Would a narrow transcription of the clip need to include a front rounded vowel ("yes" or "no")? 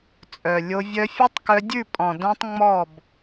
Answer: yes